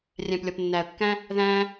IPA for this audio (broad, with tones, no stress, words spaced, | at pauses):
rʲæ̃˨plʲɒ˨pnːæ˨ə̯kːæ̃˦ | ðæ̃˦